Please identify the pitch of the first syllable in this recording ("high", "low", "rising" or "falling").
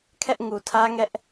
high